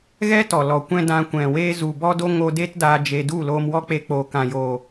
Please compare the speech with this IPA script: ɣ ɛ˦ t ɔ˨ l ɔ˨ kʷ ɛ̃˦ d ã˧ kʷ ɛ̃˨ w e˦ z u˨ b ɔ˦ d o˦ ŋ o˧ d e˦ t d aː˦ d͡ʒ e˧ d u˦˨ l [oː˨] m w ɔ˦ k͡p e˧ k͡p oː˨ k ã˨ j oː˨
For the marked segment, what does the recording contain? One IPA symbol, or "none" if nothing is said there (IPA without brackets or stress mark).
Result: oː˧